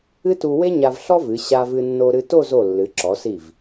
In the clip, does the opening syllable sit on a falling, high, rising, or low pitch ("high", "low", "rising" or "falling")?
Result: high